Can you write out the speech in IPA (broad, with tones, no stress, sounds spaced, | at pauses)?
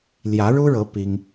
l j ä˧˥ ɻ u˥ ɻ ɤ˧˥ p i˥ ŋ